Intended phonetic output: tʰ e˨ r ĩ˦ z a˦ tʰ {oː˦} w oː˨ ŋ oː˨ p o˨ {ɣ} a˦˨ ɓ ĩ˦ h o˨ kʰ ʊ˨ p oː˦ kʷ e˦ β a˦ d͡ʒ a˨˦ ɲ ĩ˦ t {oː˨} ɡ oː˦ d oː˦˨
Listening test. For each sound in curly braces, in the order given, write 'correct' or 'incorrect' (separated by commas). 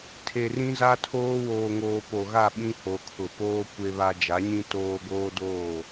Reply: correct, correct, incorrect